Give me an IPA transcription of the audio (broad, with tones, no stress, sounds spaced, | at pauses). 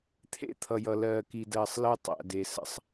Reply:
t̪ʰ ḛ˦ t̪ʰ ʌ˨ j ʌ˨ l ɜː˨ k i˨ d ɜː˨ sˤ l əː˦ tˤ æ̰˨ d e˨ s ə̰˦ sˤ